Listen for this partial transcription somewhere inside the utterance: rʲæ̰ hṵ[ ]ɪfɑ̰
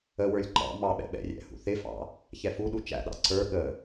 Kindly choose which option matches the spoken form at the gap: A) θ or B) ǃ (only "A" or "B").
A